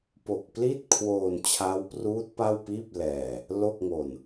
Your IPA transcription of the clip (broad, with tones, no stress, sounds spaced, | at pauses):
p o˨˩ k̚ p l i˥˩ t̚ kʰ w oː˧ n t͡ɕʰ a˦˥ w p r uː˦˥ t̚ p a˥˩ w p iː˥˩ p̚ l ɛː˧ | l o˥˩ k̚ ŋ o˧ n